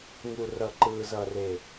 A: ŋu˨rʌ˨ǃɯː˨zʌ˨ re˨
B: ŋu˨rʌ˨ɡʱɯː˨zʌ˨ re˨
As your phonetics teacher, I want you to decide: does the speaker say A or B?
A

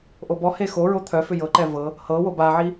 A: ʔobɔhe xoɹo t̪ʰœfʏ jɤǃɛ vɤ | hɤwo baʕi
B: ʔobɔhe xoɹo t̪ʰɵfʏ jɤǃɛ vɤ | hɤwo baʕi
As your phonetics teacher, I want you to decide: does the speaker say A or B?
A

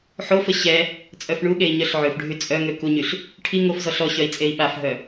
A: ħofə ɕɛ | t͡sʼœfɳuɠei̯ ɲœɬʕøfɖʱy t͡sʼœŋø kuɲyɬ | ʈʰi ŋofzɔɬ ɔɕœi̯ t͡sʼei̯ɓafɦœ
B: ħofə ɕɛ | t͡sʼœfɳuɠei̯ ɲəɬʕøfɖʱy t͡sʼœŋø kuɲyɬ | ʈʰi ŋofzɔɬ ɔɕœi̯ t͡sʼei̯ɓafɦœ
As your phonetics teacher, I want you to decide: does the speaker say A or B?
A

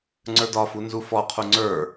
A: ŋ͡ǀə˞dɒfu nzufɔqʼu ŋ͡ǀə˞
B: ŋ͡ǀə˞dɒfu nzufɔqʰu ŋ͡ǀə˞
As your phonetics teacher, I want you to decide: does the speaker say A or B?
B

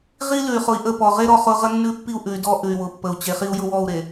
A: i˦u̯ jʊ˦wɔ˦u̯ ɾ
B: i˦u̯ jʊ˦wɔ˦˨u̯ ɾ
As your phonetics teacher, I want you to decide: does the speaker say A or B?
B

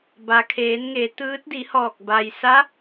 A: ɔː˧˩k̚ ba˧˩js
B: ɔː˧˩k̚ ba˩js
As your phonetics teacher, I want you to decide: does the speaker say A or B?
B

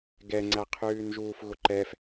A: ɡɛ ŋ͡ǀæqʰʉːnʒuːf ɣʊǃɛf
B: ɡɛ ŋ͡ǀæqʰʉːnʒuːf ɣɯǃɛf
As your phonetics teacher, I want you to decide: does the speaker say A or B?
A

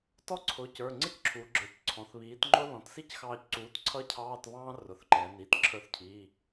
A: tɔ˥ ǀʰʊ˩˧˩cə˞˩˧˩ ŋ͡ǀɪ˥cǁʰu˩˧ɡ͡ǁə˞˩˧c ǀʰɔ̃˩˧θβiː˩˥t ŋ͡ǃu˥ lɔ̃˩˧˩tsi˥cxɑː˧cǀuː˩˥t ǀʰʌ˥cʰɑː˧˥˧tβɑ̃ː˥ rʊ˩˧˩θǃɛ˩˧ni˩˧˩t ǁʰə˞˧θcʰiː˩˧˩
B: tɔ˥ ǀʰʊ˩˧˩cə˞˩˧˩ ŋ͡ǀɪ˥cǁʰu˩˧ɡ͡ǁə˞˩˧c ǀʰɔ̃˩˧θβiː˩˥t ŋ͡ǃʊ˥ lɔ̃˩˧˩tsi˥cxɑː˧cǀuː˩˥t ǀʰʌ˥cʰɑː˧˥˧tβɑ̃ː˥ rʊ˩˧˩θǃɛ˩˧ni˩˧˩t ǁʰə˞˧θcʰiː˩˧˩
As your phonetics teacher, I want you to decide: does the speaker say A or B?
B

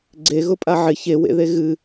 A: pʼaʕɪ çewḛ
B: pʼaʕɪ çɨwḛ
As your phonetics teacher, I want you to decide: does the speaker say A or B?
A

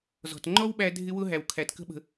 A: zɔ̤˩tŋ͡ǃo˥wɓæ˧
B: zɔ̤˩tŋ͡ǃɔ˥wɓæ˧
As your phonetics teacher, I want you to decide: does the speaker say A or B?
B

